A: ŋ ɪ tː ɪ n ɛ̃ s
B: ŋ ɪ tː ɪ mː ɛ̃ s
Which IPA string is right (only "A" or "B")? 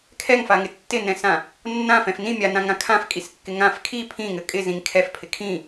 A